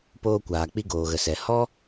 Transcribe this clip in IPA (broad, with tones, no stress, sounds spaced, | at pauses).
p oː˧ kʷ aː˨ k͡p i˧ ɡ oː˨ ɣ ə˨ s ɛ˨ h ɔ˦